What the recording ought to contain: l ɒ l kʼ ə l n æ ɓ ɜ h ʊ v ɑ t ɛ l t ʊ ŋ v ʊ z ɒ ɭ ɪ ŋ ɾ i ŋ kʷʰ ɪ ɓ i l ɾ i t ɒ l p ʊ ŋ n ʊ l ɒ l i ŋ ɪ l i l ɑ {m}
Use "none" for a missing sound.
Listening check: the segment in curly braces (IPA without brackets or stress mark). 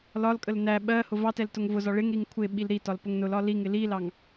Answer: ŋ